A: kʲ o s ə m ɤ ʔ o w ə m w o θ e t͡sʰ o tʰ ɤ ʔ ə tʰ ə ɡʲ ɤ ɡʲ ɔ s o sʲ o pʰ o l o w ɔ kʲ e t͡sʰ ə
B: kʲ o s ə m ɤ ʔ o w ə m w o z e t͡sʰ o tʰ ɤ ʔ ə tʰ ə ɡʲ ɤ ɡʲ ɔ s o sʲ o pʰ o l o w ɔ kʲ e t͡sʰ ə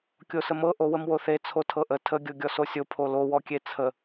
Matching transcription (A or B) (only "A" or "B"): A